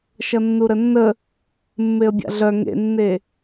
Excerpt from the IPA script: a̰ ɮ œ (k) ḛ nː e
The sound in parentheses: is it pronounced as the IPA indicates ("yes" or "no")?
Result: no